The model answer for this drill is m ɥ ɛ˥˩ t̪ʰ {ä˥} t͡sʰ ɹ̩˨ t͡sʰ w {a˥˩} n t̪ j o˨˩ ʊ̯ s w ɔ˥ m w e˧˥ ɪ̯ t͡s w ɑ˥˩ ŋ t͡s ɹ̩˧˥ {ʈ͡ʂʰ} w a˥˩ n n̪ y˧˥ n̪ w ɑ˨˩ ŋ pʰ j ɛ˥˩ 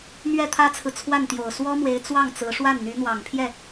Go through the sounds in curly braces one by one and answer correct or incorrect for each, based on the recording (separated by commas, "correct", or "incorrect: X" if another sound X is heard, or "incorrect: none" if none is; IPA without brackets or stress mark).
correct, correct, incorrect: ʂ